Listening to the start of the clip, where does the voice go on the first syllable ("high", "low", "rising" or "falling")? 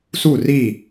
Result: falling